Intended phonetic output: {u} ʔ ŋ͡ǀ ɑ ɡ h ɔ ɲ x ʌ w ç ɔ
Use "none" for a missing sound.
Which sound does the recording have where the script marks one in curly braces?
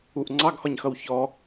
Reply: u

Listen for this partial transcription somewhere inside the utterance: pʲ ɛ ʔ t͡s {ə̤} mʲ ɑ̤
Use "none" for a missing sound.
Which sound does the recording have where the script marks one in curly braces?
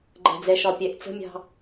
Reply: ə̤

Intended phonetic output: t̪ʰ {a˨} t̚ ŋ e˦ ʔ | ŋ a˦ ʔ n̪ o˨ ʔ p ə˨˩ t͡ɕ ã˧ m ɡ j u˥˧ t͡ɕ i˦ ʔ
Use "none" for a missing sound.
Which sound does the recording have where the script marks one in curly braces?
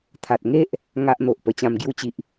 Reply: a˨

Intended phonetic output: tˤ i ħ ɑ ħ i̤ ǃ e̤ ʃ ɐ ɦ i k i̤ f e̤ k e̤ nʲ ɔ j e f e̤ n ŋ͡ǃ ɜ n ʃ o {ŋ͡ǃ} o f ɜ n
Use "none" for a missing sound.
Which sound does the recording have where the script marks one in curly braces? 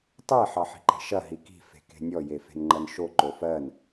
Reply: ǃ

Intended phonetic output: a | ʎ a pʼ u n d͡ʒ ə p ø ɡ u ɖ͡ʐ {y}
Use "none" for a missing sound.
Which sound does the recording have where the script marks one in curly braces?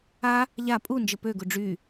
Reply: y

